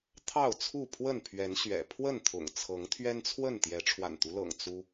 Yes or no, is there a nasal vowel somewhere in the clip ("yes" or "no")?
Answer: no